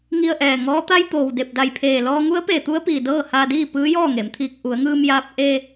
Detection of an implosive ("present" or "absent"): absent